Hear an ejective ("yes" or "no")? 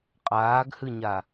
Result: yes